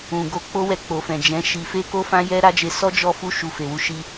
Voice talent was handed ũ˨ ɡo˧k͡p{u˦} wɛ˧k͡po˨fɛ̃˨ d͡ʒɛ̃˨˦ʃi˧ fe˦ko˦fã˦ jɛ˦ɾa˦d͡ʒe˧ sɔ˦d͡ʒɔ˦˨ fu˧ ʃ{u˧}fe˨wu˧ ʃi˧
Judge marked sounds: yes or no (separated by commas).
no, yes